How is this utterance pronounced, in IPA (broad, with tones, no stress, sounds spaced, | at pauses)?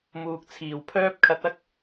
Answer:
m uː˨ k̚ t͡sʰ iː˨˩ w pʰ œː˥ p̚ kʰ ɐ˨ t̚ ɐ˥ k̚